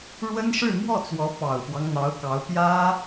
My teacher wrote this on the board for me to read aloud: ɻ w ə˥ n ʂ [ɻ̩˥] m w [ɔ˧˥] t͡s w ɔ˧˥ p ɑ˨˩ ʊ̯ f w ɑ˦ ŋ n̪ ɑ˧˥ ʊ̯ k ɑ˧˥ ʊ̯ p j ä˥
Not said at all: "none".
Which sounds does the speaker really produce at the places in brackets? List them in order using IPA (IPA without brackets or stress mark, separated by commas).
ɻ̩˥˧, ɔ˥˩